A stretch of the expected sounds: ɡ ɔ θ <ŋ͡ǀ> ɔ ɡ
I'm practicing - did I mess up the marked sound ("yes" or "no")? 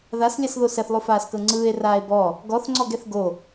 no